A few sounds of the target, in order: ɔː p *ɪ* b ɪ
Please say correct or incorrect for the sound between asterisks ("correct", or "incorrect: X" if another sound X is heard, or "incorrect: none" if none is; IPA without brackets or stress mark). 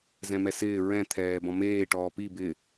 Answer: incorrect: i